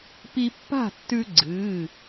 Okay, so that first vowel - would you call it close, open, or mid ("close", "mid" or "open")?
close